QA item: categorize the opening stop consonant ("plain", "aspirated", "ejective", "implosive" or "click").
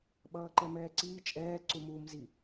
implosive